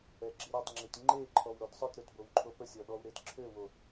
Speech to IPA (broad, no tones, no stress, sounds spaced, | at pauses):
ɛ ɡ͡ǁ i ɾ ɔ tˤ ŋ͡ǁ i t ŋ͡ǃ e ǃʰ ɔ w ɾ o d sˤ œ t ɾ ø t b o w ǃʰ o p ə sʲ ɔ ɗ ɔ w ɾ e d ǁʰ ø w o